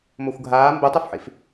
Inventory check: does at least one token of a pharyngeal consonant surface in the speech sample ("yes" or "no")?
yes